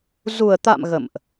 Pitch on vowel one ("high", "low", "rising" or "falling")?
low